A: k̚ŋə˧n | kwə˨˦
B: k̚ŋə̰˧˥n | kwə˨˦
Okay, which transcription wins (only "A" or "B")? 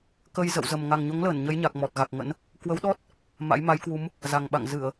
B